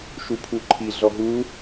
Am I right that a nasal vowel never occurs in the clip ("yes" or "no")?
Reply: yes